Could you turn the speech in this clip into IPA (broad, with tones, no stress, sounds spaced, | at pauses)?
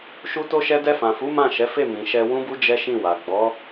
ʃ u˧ t o˧ ʃ ɛ˧ d ɛ˧ f ã˨ f u˨˦ m ã˦˨ ʃ ɛ˨˦ f e˦˨ m ĩ˨ ʃ ɛ˧ w ũ˦ b u˦ d͡ʒ ɛ˦ ʃ ĩ˦˨ w a˨ ɡ͡b ɔ˨˦